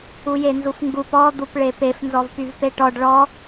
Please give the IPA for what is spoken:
u j e n z u f ŋ ɡ u p ɔ d̪ u p ɭ e p e f n z ɔ v p y v p e ʈ ɔ ɖ ɭ ɔ

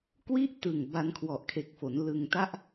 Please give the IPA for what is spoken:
k w i˥˩ ʔ t ɯ˨˩ ŋ b a˧ n kʰ w ɔ˨˩ ʔ kʰ e˨˩ k̚ f o˩˦ n l ɯ˧ ŋ t a˥˩ ʔ

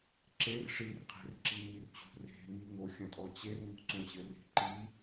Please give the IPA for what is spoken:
ǁ e r ʂ i r qʰ e̤ r ǁ i m i r t͡ɕ ṳ r e̤ m i ŋ o xʲ ɐ̃ tʼ ɔ t͡ɕ e r ŋ ṳ ǀ õ ɕ ɘ r i̤ ǃ i

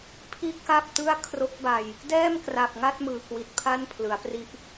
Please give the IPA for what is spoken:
pʰ i˥˩ ʔ k a˥˩ p̚ t ɯ˥˩ a̯ kʰ r o˦˥ k̚ b a˧ j | d ɛː˥˩ m k r a˨˩ p̚ ŋ a˥˩ t̚ m ɯː˨˩ k w i˨˩ t̚ pʰ a˥˩ n pʰ l ɯ˩˦ a̯ p r i˥˩ ʔ

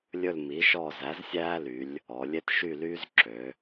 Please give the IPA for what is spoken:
lʲ ɵ˦˨ l m i˩˥ ʃ ɔ˦˨ z æ˩˥ z sʲ æː˦ l y˩˧ lʲ | ɔ˩˧ lʲ e˦ t ʃ y˦˨ l yː˦ z ǁ ø˩˧

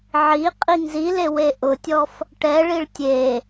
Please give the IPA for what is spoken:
ʕ i qʼ i ŋ z i l e w e ʔ ʊ tʲ ɔ f | ʈ ɛ ɭ i ɭ tʲ e

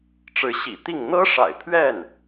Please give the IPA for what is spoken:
ʈ͡ʂ ɻ̩˧˥ ɕ ḭ˨˩ t̪ i˥˩ ŋ n̪ ɤ˥ ʂ a̰˨˩ ɪ̯ pʰ ɥ ɛ˥˩ n

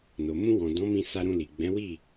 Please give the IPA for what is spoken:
n o˨ m ũ˧ w ɔ̃˨ d ɔ̃˨˦ m ĩ˧ s a˧ ɾ ũ˧ l i˨ ɡ͡b ɛ̃˨˦ w i˦˨

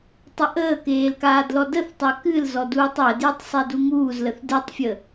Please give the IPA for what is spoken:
tˤ ə ʔ əː k eː l k aː d l ɔ d ə θ tˤ ɜ k ɨ l z ɔ d uː tˤ w ə d j ɨ tˤ sˤ i d u ŋ uː z l ə θ d ɨ tˤ fʲ ə

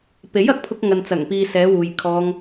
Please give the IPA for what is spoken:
p e˨˥ j ɐ˨ k̚ pʰ ʊ˧ k̚ ŋ ɐ˨ n t͡s ɐ˨˩ ŋ p iː˨ s ɛː˨˧ w uː˨ j kʰ ɔː˧ ŋ

